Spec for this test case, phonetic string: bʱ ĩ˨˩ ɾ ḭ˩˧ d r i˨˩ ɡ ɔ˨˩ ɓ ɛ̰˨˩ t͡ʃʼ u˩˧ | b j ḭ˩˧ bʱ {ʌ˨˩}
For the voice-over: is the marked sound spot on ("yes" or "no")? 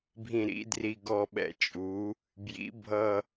yes